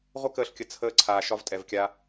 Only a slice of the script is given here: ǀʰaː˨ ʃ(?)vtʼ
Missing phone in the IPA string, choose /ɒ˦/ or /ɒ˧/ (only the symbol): ɒ˧